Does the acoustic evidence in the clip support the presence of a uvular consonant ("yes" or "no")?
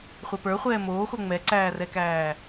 yes